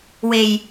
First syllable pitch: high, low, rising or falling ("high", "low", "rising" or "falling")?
low